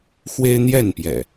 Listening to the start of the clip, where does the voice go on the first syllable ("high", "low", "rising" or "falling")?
high